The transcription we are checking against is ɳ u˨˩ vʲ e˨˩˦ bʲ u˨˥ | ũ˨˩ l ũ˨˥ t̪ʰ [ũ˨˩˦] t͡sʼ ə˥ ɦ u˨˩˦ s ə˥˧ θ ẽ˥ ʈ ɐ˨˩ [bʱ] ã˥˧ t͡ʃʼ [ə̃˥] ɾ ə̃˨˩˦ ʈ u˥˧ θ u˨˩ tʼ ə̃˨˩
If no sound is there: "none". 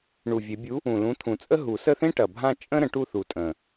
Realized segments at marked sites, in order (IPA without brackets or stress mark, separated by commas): ũ˨˩˦, bʱ, ə̃˥